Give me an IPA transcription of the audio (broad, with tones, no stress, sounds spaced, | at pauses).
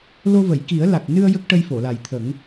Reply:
l o˧ v ə˨˩˨ j k i˨˩˦ ə̯ l a˨˩ k̚ n ɨ˧ ə̯ j ə˦˥ k̚ ʈ ə˧ j f o˨˩˨ l a˨˩ j t̪ʰ ə˨˩˦ ŋ